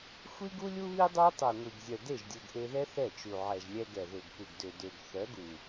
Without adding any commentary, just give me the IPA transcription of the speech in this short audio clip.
xʷ i˦ ɡ u˦ lʲ u˦ β i˦ dˤ œ˦ tˤ ø˨ ŋʷ i˨ ɡ zʲ œ˨ d e˦˨ ʒ dʲ u˨ ɡ ʔ e˧ ð ɛ˦ θ ɛ˦˨ t͡ʃ u˨ ʕ ɛ˨ ʒ lʲ ɛ˧ ɡ ɛ˨ ð ø˨ ɡ p u˨ ɡ d ø˨ d ø˨ ɡ θ œ˨˦ ɡ u˨

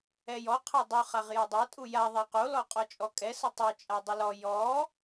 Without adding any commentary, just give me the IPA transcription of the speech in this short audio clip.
ɛ j ɔ qʰ æ dˤ u χ a ʁ j a dˤ ɛ tʼ u j a ðˤ æ q o l ɔ qʼ ɔ t͡ʃʼ ɔ kʼ ɛ s ə tˤ u t͡ʃʼ a dˤ ə l ɔ j ɔ

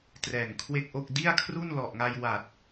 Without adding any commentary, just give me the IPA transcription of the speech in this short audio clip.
t r ɛː˨˩ ŋ kʰ w e˥˩ k̚ ʔ o˥˩ k̚ d i˥˩ a̯ kʰ r u˥˩ n l ɔ˨˩ ʔ ŋ a˧ j w a˨˩ t̚

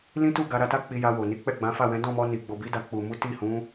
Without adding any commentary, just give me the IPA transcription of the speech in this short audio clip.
l ĩ˦ t u˦˨ ɡ a˧ ɾ a˧ t a˦ k͡p i˧ j a˧ w o˨ n i˨˦ k͡p ɛ˦˨ ɡ͡b ã˨˦ f a˦˨ w ɛ̃˨˦ d ɔ̃˦˨ m ɔ˧ n i˨ ɡ͡b o˨ b i˨˦ d a˧ k͡p u˨ m u˨˦ t i˦˨ h ũ˨˦

